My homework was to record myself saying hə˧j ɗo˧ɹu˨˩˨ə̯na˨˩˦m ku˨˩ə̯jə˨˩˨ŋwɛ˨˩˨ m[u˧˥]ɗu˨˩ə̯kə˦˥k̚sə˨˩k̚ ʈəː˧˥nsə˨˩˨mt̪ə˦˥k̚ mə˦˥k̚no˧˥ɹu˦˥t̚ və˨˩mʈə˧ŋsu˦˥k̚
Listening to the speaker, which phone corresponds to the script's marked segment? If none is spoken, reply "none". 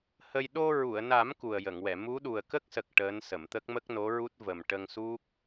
u˧˥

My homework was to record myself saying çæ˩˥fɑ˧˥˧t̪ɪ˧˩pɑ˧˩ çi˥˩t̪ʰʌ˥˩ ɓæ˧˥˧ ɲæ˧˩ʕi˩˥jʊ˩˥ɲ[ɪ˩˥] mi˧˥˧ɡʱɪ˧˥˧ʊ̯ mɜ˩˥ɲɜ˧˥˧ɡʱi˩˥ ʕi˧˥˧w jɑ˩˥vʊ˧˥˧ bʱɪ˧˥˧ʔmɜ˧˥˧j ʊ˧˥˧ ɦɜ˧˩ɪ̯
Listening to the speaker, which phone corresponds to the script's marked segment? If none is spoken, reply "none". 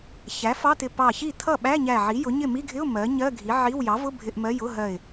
ɪ˥˩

